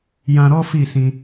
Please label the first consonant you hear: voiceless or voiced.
voiced